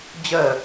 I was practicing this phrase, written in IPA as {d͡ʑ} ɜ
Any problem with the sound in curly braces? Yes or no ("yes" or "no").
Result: no